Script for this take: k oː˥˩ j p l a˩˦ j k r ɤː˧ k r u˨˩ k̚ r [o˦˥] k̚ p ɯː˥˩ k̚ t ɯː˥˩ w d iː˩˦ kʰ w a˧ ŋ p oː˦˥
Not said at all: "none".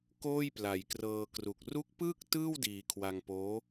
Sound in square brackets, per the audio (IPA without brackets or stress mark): u˦˥